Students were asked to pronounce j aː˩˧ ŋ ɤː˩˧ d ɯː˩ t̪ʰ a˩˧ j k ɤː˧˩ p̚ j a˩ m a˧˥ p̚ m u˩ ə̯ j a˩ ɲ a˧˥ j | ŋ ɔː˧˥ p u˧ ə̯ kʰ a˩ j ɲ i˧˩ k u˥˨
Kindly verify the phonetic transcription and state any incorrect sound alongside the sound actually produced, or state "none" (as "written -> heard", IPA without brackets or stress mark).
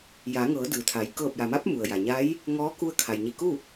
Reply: p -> k